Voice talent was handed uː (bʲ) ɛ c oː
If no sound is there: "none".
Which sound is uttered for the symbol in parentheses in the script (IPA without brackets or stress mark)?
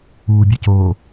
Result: bʲ